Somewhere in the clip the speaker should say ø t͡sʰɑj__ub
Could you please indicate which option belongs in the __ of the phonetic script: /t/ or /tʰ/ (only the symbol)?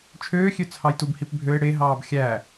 t